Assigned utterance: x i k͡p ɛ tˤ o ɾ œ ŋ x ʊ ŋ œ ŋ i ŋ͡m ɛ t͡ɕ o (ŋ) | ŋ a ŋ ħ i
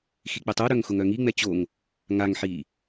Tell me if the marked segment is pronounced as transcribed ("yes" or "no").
yes